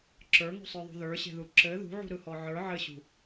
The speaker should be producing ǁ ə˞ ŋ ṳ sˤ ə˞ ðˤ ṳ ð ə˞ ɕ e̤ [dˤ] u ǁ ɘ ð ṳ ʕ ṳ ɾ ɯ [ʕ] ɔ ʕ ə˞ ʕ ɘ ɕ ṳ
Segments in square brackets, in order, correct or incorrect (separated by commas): incorrect, incorrect